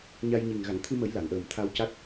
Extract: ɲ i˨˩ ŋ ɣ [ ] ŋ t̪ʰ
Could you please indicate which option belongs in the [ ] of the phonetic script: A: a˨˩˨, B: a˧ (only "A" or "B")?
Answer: A